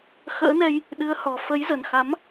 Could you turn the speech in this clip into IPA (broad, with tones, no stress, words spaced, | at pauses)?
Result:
xə̰ː˧˥nɛ˧j | ɗɨ˨˦ə̯hɔ˨˩ fə˨˦jzə˨˩nxa˨˦m